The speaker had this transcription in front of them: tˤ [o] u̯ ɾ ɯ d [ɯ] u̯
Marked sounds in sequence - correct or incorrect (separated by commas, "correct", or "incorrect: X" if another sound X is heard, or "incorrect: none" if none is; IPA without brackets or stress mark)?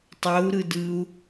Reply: correct, correct